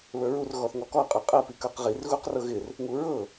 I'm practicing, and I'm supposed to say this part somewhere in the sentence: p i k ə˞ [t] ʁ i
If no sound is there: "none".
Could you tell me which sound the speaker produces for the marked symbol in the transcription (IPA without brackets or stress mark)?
q